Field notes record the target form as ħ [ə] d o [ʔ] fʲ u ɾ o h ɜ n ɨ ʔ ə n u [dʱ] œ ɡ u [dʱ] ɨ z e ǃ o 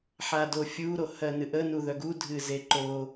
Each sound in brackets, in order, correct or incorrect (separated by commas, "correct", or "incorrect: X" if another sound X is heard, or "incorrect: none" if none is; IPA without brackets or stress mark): incorrect: a, incorrect: none, incorrect: ð, correct